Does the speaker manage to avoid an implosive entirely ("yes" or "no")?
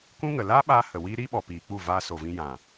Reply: no